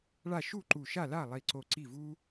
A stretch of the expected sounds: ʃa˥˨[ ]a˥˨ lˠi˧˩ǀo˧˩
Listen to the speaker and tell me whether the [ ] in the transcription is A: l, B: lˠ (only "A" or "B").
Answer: A